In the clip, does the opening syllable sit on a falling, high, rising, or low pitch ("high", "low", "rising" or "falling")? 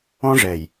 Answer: high